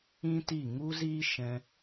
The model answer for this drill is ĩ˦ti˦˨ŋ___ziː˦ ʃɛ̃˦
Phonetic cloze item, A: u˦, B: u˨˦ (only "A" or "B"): A